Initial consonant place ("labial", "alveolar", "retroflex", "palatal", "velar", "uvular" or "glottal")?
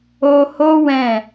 glottal